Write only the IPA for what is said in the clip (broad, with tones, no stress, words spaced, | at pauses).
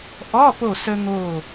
ʔɔ˧˥˧ po˥˨ sə˥ŋo˥˨